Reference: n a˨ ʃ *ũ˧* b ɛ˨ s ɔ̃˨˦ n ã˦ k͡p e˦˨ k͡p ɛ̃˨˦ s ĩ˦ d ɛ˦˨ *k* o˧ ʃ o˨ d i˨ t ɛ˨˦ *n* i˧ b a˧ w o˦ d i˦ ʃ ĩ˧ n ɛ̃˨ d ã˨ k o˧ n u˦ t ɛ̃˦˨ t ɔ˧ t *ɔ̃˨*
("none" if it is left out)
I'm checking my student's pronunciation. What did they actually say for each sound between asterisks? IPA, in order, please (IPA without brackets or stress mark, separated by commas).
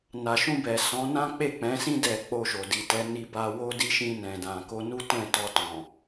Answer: ũ˧, k͡p, n, ɔ̃˨